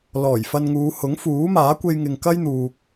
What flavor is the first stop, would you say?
plain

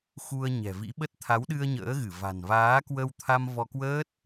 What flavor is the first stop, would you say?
implosive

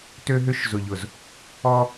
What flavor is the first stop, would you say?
plain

